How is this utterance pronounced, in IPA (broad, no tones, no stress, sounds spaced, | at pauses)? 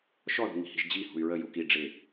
ʃ ɔ ð ṳ ŋ i̤ h i̤ ʒ d͡ʑ i h ṳ y̯ ɹ ə j u k i ɖ͡ʐ ɪ